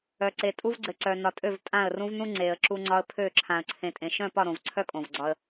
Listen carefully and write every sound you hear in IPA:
œ˨ ǀ e˨ tʼ u˦ v ɡ͡ǀ ɘ˨ ǀ œ˨ n ɒ˨ tʼ ø˦˨ v tʼ ã˦˨ ə̯ r ũ˦ v n ũ˦ ŋ͡ǀ e˨ ə̯ ǁ u˦ ŋ͡ǀ ɒ˦ ə̯ pʰ ø˦˨ ǁʰ ã˨ ə̯ ǀʰ ẽ˨ tʼ ẽ˨ ʃ œ̃˦˨ p ɒ˦˨ ɾ õ˨ v ǀʰ œ˦ kʼ õ˨ v ɡ͡ǀ ɒ˦ ə̯

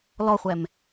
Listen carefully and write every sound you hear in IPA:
l ɔ χʷ ɛ m

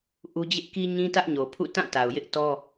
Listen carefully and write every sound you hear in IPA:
ʔ u˦ d͡ʑ ɪ˦ ʔ k i˦ ɲ ĩ˦ t ä˦ ʔ ɲ o˨ pʰ ṵ˦˨ t ã˦˨ t a˨ ʊ̯ j ɪ˦ ʔ t ɔ˦

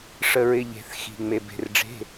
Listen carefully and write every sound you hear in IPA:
ʂ ə˩ ɹ ɪ˩ ʎ e̤˩ θ x i̤˩ ŋ͡m e˩ b e̤˩ r ɖ͡ʐ e̤˩˧˩

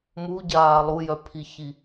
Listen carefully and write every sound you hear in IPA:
m u ɟ aː lˠ u j œ pʰ i ç i

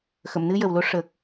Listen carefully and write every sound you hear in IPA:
x ə˨˩˨ m n ɨ˧ j ə˨˩ w l o˧ ʂ ə˨˩ k̚

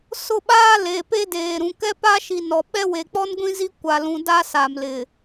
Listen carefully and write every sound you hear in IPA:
s ʊ˦˨ ɓ aː˦ l e˨ p e˦ d eː˨ ɾ ũ˨ k ɛ˦ p a˦ ʃ i˨ n ɔ˨ ɓ ɛ˦ w e˨ k͡p ɔ˦ n ɡʷ ĩ˦ z i˦ kʷ a˨ l ũ˨ d a˦ s a˨ m l ɪ˨

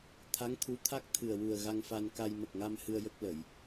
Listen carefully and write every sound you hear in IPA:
t̪ʰ a˧˥ ŋ t̪ʰ u˧˥ t̪ʰ a˦˥ k̚ t̪ʰ ɨ˨˩ ə̯ w u˨˩ ə̯ ɣ a˧ ŋ f a˧ n k a˧ j m ə˨˩ k̚ ŋ a˧ m h ɨ˧ ə̯ j ə˦˥ k̚ l ə˨˩˨ j

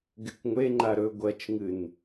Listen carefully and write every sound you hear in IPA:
ɡ e kʷ ŋʷ e ŋ͡ǃ a ɾ ɵ ɡʷ ɐ t͡ʃ ŋ ɨ n

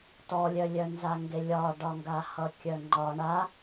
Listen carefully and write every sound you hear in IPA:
t ɔ lʲ œ lʲ œ n z a ŋ ɡ e lʲ ɒ ɖ ɒ ŋ ɡ a h ʌ kʲ œ ŋ͡ǃ ɒ ɳ a

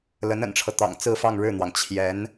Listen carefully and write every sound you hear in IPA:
l ə˧˥ n ə̰˨˩ n ʈ͡ʂʰ ɤ˦ t̪ ɑ̰˨˩ ŋ t͡s ɹ̩˥˧ f ɑ˥˧ ŋ ɻ ɻ̩˥˩ n̪ w ɑ˩ ŋ t͡ɕʰ j ɛ˧˥ n

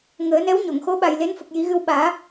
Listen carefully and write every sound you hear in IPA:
ŋ əː˨˩˦ n ɛ˧˥ w ɲ o˨˩˨ ŋ x o˧˥ ɓ a˨˩ j l e˧˥ n f ə˨˩ k̚ j i˨˩˦ ɣ ɨ˧ w ɓ aː˨˩˦

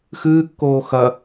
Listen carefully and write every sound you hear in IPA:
x ɨː kː oː x ɐ

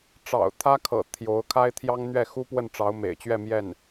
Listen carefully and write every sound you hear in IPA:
ʈ͡ʂ ɑ̰˨˩ ʊ̯ t̪ʰ ä˥ kʰ ɤ̰˨˩ t̪ʰ j o˧˥ ʊ̯ kʰ a˥ ɪ̯ t̪ʰ j ɑ˥ ŋ n̪ ɥ ɛ˥˩ x u˥ p w ə˥˩ n ʈ͡ʂ ɑ˧˥ ʊ̯ m ḛ˨˩ ɪ̯ t͡ɕ ɥ ɛ˥˧ m j ɛ˥˩ n

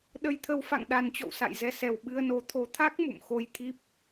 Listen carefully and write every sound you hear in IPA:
ɗ ə˧ j t̪ʰ ə˧ w f a̰˧˨ ŋ ɗ a˨˩ n t͡ɕ ɔ̰˧˨ w s a̰˧˨ j z ɛ˧ s ɛ˨˩ w ɓ ɨ˧ ə̯ n o˨˦ t̪ʰ o˨˦ t̪ʰ a˦˥ k̚ m ṵ˧˨ m x o˧ j t̪ʰ i˦˥ p̚

